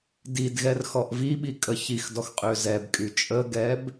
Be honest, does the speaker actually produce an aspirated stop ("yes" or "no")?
no